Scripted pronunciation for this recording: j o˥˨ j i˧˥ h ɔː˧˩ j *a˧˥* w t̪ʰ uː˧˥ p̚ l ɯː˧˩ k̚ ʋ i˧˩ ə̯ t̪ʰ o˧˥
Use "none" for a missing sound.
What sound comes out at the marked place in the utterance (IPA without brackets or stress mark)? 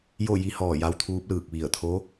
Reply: a˧˥